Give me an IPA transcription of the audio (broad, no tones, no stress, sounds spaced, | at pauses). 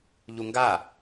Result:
ʎ u ŋ ɡ a